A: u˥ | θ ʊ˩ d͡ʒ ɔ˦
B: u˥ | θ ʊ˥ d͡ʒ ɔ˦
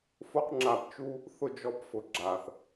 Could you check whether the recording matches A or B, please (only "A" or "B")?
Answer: B